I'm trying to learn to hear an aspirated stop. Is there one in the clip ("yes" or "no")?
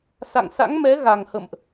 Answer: no